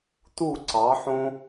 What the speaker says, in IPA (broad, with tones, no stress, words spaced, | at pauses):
tu˦˨ǀɑ˨˦ħõ˦